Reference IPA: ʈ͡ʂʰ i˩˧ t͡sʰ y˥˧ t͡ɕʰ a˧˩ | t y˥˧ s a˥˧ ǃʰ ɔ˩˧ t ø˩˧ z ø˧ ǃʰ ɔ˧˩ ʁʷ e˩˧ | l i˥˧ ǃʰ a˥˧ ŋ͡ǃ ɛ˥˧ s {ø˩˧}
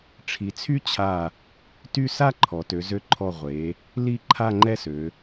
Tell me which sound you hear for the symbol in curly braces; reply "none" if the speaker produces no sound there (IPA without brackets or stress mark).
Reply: ø˩˧